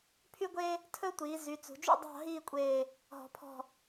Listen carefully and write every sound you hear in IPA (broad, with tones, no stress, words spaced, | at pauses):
pʰy˥ɡʷeː˥ | tʰɵ˥tʷiː˩˧ zy˩˧t͡sṳ˩˧d͡ʒṵ˥˧ dˤɑ̤˥˧ɦiː˥˧kʷʼeː˧˩ | ɦɔ̤˩˧pʰɔ̤˧˩